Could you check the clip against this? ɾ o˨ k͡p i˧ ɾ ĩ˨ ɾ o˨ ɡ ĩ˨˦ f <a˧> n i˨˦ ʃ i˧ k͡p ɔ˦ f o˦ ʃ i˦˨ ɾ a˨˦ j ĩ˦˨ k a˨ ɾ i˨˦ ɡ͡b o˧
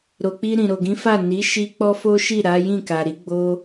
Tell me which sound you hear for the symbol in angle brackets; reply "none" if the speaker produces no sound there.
a˦˨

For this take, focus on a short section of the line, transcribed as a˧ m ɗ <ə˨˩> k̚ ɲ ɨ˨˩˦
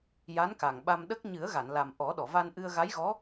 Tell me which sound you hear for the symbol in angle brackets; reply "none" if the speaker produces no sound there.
ə˦˥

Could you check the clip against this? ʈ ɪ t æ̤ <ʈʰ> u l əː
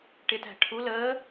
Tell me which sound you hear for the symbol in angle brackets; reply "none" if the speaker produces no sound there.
ʈʰ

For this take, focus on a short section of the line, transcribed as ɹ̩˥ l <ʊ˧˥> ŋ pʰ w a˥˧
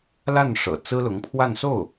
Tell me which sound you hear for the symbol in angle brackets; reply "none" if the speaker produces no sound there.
ʊ˧˥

